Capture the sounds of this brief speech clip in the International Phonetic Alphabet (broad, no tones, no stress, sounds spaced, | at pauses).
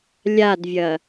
lʲ a d vʲ ɐ